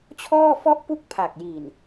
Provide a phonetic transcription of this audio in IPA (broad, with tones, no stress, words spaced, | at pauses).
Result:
t͡ɕʰɔː˥˩fɔ˥˩ʔpu˥˩k̚ pʰa˨˩k̚ji˨˩n